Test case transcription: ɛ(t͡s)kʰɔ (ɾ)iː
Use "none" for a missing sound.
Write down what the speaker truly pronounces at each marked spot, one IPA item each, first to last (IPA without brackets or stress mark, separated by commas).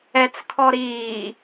t͡s, ɾ